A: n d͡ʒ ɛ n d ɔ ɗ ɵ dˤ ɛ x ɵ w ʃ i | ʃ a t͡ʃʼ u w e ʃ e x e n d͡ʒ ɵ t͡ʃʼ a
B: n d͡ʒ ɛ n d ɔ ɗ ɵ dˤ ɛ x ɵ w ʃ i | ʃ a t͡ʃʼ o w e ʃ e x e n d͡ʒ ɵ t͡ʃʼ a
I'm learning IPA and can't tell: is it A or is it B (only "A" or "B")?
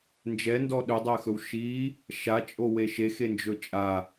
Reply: B